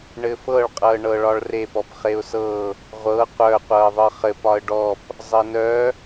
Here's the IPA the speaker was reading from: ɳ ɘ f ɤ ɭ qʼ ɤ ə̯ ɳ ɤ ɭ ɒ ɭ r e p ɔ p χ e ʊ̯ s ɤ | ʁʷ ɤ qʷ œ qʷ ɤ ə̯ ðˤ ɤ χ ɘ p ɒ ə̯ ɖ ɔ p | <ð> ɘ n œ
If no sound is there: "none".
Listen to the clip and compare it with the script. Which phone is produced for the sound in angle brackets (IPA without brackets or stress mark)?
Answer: zˤ